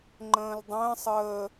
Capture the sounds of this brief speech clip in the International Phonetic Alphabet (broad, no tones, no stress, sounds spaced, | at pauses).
ŋ͡ǃ ə̃ː l dˤ ə̃ː sˤ əː